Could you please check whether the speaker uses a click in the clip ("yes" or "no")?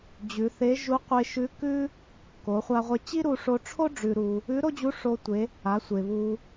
no